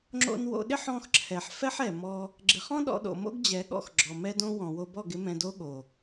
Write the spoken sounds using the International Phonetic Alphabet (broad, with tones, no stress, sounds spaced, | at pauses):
ŋ͡ǁ o̰˧ n w o̰˧ ɗ ɪ˦ ħ ɔ̃˧ x ǁʰ ɛ˨ ħ f ɛ˦ ħ ɛ˨ m ɔ˧ | ɡ͡ǁ ɪ˨ χ ɔ̃˦ ɗ ɔ̰˧ ɗ o̰˨ m o̰˦ ɡ d͡ʑ ɛ˨˦ ɠ ɔ̰˧ x ɡ͡ǁ ɔ˨ m ɛ˦ d õ˦ w ɔ̃˨ w o˧ b ɔ˦˨ ɡ ɪ˦ m ɛ̃˧ d o˦ ɠ o˨